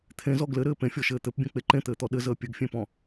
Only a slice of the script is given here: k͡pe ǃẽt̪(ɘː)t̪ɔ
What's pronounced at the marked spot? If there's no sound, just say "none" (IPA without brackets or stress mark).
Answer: ɘː